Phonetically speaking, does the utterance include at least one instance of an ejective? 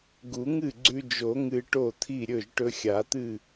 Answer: no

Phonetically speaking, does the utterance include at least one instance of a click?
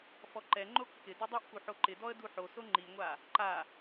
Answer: yes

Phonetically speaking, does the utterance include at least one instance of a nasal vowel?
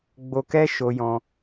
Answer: yes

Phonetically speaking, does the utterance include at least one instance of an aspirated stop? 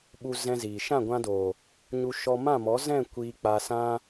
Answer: no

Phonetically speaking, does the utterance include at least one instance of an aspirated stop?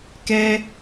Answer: no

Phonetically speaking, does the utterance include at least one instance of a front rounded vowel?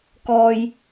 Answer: no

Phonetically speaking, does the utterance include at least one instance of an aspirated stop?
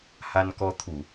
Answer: yes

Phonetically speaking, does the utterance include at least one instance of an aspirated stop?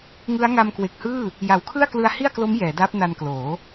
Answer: yes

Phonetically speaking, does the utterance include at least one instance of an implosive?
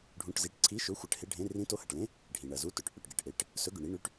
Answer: no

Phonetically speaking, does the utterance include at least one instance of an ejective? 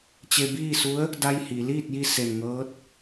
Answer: no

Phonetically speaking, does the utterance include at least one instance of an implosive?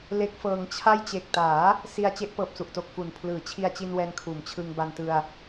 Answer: no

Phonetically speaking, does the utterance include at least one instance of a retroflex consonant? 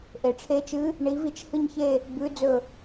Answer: yes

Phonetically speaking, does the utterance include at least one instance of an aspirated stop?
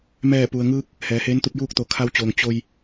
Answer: yes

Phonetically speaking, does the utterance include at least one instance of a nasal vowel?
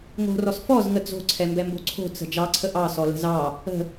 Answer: no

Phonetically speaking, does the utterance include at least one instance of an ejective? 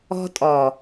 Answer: yes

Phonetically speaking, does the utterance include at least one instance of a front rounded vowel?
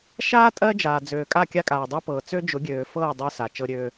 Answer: yes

